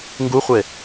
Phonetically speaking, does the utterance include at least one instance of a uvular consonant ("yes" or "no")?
yes